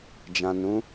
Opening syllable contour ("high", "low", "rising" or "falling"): low